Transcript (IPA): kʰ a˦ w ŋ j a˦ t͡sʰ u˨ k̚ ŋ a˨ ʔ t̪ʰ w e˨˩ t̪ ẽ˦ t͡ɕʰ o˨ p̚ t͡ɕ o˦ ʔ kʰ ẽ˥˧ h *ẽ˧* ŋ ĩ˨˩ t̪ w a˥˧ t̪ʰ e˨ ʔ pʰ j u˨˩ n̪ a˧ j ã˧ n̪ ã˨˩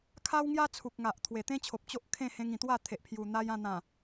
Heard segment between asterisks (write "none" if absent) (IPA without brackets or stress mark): ẽ˧